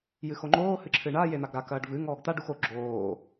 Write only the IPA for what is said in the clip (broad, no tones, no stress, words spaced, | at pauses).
jɨxoŋ͡ǃoː hɨǁʰɨɳa jen̪aɡɾa kɐːɖvɨ ŋɔːɡt̪a ɖuxo ɡ͡ǁoː